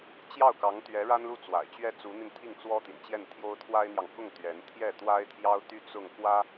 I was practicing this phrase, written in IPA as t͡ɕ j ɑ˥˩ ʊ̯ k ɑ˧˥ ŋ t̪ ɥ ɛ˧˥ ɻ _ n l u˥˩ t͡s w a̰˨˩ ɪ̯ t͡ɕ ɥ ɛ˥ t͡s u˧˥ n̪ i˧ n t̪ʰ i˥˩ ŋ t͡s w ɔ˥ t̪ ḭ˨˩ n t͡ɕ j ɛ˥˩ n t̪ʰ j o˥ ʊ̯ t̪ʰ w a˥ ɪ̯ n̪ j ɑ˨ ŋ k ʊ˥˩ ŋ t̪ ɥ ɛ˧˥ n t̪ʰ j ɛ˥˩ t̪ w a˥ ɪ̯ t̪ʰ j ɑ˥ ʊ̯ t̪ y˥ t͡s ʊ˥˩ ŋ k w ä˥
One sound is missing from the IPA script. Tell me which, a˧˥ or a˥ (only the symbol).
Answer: a˥